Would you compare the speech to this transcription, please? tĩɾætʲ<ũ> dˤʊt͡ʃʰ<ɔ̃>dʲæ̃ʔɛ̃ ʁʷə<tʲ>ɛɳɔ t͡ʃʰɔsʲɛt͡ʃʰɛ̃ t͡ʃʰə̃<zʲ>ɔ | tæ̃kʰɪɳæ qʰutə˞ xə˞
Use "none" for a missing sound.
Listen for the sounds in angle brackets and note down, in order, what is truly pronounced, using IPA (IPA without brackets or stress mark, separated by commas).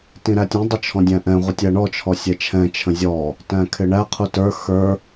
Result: ũ, ɔ̃, tʲ, zʲ